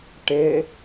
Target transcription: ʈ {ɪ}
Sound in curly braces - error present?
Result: no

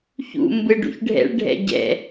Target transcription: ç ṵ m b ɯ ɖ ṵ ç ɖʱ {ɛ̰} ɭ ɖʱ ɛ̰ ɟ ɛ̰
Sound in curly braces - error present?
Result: no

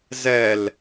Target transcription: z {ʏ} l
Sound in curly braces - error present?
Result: yes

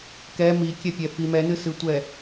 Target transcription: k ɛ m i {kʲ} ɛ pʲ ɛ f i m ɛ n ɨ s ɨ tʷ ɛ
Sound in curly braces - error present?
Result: no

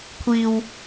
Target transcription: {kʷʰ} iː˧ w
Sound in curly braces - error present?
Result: no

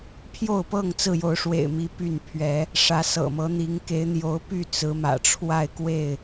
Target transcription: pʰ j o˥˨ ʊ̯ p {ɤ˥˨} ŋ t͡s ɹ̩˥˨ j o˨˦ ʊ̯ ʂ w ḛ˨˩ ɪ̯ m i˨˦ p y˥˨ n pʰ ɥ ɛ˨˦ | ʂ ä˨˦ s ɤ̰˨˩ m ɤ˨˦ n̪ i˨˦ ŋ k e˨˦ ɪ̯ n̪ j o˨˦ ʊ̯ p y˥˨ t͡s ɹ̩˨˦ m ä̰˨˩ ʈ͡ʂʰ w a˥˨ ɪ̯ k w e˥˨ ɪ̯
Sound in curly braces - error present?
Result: no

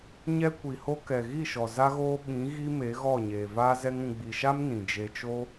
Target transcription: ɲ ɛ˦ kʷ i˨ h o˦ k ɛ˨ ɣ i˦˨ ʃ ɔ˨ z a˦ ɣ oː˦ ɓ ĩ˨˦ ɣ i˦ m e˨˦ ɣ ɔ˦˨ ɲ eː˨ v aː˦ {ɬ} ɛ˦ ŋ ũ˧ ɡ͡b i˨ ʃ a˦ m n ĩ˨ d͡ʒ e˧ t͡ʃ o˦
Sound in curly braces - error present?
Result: yes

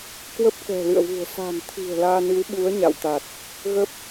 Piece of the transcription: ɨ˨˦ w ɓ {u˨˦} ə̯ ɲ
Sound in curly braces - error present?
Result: no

